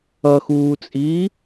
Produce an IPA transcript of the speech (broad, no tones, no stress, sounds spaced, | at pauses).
ʌ x uː t͡sʼ iː